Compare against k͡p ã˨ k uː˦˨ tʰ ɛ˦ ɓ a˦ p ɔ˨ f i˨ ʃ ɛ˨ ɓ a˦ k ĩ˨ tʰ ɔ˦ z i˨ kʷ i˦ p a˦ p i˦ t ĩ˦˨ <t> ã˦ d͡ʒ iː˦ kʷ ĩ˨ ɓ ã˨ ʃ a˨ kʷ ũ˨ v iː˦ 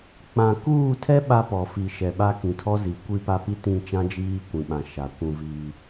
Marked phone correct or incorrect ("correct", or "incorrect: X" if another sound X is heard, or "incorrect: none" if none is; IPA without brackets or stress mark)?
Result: incorrect: t͡ʃ